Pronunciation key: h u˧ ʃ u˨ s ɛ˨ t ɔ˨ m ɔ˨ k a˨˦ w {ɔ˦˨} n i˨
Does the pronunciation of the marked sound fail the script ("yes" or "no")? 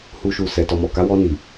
yes